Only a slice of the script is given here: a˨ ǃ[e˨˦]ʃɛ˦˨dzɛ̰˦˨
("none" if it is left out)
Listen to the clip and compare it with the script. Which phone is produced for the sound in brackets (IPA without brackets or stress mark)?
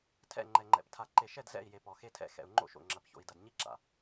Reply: e˨